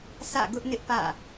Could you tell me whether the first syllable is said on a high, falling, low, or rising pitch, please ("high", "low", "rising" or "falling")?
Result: falling